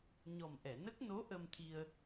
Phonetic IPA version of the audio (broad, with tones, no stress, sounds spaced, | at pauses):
ɲ ɔ˨˩ m ʔ ɛ˨˩˨ n ə˦˥ k̚ n o˧˥ ʔ ə˧ m t̪ʰ i˧ ə̯